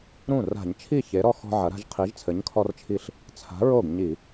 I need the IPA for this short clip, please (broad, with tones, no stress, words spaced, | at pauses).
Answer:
ɾũ˥˩ ra̤˧˩˧ɲt͡ʃʰi˥˩çe˨˥ɾɔ˦ xɔ̤˦ʕɐ˨˥ɾa̤˦ʒ qʰi˨˥ʒt͡sʰɘ˨˥ɲkʰɔ˦rt͡ʃʰi˦ɬ | t͡sʰa̤˨˥ɹo˥˩ɡ ɲi˧˩˧